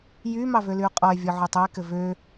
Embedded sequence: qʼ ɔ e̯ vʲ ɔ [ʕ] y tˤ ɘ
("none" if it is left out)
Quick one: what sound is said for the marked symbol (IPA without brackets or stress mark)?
ʕ